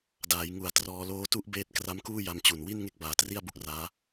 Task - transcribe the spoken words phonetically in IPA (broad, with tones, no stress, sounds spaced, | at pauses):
d aː˩˦ j ŋ u˨˩ a̯ t r ɔː˧ l oː˧ t u˦˥ ʔ b eː˦˥ t̚ k r a˦˥ m k uː˥˩ j a˧ m t͡ɕ u˨˩ n w i˥˩ n ŋ e˥˩ k̚ b aː˨˩ t r i˥˩ a̯ b u˥˩ k̚ r aː˦˥